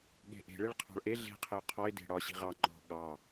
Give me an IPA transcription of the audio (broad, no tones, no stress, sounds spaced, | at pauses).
ɠ e̤ ʔ e̤ ɭ e ɭ qʰ ɑ̤ ɭ ʔ e ɮ e̤ qʰ ɪ ʊ̯ qʰ ɔ ɪ̯ d e̤ ɽ ɒ ɕ i̤ ʁ ɑ ŋ͡ǃ ɔ̤ ɠ ɑ